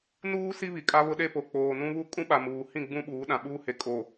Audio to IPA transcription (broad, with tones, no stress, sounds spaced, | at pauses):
n uː˦ s i˦ β i˨ kʼ a˦ β ʊ˦ ɗ e˦ p o˨ k͡p oː˨ n ũ˦ β u˦ kʼ ũ˦ ɓ a˨ m uː˨ h ĩ˦˨ ɡ͡b ũ˦ ɓ uː˨˦ ɗ ã˨ ɓ uː˦ h e˨ kʼ o˨